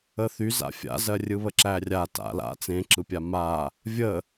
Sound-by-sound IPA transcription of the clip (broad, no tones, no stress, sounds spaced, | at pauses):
ə θ y z a̰ fʲ a̰ z ɜ rʲ ɯ β ə ǁ æ rʲ a t a̰ l a̰ t͡s ẽ ǁ ɯ pʲ a m a | vʲ ə